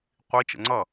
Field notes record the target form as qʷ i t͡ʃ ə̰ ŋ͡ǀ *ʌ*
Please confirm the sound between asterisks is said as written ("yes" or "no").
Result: yes